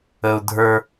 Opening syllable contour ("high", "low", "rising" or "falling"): low